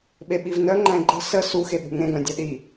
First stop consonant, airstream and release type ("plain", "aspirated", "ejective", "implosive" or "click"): implosive